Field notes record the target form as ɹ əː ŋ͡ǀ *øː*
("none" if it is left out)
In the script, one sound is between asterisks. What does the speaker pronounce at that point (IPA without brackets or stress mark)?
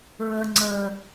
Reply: əː